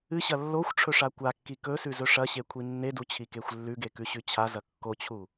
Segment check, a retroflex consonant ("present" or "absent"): present